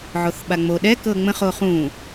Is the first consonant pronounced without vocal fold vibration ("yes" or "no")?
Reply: no